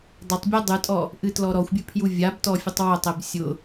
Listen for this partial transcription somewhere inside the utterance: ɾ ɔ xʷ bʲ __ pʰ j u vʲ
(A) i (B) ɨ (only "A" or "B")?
B